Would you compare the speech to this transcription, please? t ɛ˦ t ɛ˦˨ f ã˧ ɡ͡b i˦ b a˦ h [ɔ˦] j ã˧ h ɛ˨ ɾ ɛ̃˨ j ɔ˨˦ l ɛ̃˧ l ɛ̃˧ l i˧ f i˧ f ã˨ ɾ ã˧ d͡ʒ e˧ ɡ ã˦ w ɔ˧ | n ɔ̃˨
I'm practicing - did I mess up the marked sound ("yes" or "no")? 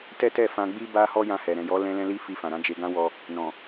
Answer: no